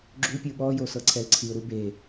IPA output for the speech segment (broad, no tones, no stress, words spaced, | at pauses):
ɡ͡ǁupʲɯ ɓɔjo sɤǀʰɛlǀʰiʊ̯ɾu be